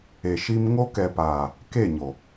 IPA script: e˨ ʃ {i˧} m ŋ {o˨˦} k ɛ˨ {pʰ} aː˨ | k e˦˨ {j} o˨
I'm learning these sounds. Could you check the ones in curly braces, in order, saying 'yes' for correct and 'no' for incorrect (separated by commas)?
yes, no, no, no